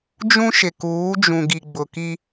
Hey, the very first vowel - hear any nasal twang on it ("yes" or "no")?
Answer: yes